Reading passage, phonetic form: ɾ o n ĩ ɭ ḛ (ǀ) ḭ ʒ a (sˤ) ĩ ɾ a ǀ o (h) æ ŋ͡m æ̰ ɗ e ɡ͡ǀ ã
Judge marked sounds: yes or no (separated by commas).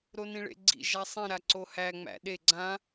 no, yes, yes